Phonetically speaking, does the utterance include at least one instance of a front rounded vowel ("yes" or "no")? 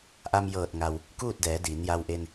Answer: no